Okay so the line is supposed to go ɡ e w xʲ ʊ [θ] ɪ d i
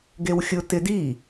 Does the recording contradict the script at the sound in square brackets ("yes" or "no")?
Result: yes